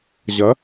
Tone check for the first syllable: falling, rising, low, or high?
rising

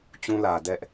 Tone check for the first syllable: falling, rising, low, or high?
high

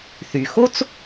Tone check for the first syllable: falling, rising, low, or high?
low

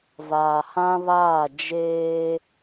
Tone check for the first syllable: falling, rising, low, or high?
low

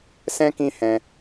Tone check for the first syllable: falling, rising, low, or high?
high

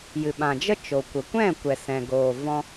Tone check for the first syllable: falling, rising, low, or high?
low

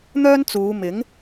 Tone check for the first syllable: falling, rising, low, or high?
high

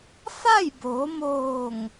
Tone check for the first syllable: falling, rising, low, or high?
falling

